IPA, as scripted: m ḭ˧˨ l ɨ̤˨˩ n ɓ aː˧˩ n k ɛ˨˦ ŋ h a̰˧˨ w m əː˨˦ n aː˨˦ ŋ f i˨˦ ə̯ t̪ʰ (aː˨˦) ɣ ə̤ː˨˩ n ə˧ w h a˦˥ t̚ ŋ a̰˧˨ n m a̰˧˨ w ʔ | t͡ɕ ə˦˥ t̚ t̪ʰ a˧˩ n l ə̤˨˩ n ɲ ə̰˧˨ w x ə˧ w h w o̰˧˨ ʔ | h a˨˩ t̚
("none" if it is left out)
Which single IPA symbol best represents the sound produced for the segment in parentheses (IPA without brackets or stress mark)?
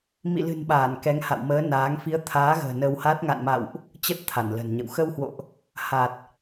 aː˨˦